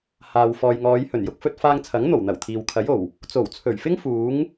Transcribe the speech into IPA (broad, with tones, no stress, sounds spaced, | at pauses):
h aː˨ w f ɔː˨ j ŋ ɔː˨˧ j h ɵ˨˩ n j ʊ˧ k̚ f ɵ˧ t̚ f aː˧ ŋ t͡sʰ ɐ˨˥ ŋ n̪ o˨˩ w n̪ ɐ˨˩ w t̪ʰ iː˨ w kʰ ɐ˨˥ j o˨˩ w | t͡s o˨˩ w t͡sʰ ɵ˨˩ ɥ f ɪ˥ ŋ f uː˨˥ ŋ